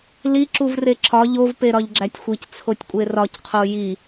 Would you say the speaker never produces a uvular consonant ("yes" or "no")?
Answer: no